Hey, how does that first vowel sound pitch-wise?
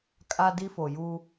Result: high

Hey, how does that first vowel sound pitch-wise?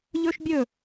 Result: high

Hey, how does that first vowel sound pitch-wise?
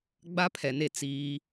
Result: high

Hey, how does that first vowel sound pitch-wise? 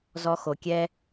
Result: high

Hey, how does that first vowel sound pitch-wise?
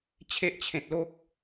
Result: high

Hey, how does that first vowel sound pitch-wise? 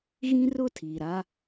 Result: high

